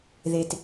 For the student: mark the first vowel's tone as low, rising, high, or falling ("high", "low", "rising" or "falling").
low